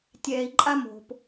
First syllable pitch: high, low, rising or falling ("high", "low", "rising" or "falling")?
low